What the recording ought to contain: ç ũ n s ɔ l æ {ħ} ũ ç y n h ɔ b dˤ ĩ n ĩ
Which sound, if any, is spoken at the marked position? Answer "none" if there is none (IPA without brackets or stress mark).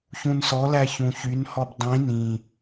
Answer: ç